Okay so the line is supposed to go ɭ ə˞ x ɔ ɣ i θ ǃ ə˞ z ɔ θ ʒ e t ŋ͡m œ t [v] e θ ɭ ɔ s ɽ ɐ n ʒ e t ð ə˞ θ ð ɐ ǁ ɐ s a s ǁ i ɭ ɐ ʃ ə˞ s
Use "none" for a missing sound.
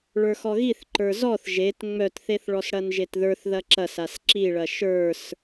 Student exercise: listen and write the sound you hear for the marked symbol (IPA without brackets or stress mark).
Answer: θ